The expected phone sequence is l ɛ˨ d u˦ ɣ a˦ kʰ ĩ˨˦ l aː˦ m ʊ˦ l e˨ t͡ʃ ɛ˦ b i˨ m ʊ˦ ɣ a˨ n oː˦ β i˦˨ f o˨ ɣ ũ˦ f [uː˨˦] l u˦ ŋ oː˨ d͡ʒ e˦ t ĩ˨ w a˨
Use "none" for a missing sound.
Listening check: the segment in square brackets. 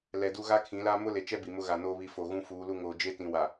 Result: uː˨˦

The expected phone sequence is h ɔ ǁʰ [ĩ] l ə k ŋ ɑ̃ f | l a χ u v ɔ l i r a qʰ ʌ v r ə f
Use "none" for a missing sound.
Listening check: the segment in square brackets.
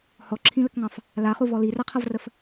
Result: ĩ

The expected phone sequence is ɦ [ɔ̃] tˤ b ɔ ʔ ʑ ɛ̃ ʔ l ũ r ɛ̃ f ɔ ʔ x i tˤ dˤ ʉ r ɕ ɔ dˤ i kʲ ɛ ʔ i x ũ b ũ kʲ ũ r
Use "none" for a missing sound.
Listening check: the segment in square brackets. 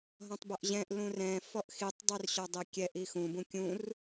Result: ɔ̃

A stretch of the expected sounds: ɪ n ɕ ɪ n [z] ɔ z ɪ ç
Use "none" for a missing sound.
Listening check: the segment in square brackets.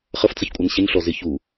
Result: ɬ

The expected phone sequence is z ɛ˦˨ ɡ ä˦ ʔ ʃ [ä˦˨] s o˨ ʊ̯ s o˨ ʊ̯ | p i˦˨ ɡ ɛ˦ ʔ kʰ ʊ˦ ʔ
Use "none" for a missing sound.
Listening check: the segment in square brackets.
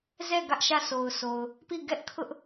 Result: ä˦˨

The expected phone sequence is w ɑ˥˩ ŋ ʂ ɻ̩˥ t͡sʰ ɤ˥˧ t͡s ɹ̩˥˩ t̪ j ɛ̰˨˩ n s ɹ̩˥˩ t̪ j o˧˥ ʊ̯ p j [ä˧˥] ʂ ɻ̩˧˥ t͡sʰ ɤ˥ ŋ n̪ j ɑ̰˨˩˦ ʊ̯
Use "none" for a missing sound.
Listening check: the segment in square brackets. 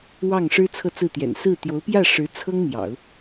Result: ä˥˩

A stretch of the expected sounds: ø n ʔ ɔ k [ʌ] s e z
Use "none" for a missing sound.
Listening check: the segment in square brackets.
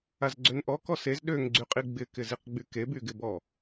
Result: ɔ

